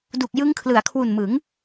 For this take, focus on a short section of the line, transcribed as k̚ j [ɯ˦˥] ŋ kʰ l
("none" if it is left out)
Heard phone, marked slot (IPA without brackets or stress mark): ɯ˦˥